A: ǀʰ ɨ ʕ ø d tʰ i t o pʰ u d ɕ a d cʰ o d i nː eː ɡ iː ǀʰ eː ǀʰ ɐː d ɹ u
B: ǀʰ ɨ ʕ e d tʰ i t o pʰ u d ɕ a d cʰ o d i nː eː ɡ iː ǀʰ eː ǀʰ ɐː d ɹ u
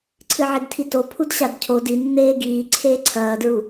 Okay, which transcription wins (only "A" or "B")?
B